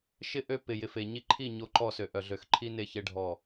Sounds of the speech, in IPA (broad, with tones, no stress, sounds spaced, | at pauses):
ʃ ɪ˦ ʔ ø˦ p ɪ˨ j ɪ˨ f e˨ ɲ i˦ ǃʰ i˦˨ ɲ o˦˨ ǃ ɔ˦ s ø˨ ʔ œ˨ ɮ ø˨˦ x ǃʰ i˦ n e˦ ç e˦ ɖʱ ɔ˦˨